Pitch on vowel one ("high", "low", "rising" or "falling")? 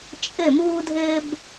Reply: falling